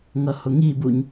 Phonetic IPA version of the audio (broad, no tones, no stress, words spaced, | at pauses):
ŋʌhʊŋibuɲ